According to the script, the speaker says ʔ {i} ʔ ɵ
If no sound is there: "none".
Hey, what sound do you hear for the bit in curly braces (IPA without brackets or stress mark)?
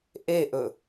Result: e